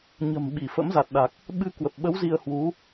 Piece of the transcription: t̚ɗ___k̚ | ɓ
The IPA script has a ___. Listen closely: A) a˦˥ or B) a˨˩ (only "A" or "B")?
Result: B